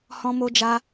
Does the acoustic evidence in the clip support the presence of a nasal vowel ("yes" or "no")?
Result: yes